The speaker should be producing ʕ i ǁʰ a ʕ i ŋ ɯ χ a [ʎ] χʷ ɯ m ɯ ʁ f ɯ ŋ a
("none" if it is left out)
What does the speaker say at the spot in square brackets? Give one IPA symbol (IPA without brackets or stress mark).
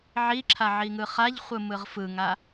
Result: ʎ